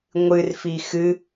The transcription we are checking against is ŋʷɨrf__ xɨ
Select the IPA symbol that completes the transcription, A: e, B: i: B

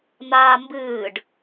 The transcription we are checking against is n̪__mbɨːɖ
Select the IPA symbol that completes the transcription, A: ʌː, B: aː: B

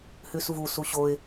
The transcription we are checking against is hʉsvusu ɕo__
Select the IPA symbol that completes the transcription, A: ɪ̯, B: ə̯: A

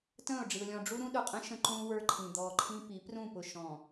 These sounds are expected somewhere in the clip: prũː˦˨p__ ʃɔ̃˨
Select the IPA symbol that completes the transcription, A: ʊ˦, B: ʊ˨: B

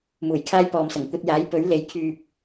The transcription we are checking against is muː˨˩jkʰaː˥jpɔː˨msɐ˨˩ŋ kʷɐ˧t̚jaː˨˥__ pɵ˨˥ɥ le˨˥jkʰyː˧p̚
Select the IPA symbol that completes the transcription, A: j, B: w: A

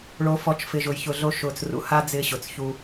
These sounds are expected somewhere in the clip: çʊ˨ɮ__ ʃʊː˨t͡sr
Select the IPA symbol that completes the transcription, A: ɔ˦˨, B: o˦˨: B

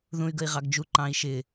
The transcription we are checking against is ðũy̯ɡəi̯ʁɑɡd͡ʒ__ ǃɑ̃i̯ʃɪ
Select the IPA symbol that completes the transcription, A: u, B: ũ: A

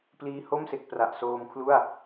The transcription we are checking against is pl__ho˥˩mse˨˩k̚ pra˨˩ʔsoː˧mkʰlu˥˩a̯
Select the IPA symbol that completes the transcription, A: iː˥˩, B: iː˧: B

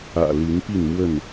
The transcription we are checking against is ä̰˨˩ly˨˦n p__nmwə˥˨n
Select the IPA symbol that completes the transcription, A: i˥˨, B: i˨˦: A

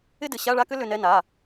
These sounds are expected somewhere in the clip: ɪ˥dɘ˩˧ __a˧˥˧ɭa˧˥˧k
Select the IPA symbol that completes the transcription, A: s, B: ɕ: B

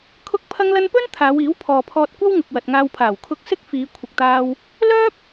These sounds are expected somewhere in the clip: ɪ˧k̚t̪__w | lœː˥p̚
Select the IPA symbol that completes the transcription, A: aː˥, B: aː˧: A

